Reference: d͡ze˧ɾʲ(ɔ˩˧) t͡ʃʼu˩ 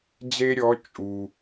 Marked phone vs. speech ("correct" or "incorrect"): correct